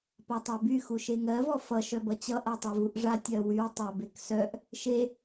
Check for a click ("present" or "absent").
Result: absent